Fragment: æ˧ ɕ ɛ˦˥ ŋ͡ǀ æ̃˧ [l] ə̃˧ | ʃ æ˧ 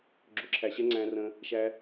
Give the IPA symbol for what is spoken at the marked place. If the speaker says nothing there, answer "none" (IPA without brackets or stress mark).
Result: r